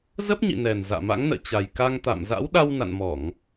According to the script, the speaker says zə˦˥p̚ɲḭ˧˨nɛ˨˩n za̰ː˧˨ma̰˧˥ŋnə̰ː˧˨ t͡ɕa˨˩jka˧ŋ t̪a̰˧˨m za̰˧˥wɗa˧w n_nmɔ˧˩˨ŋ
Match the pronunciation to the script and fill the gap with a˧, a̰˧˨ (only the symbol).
a̰˧˨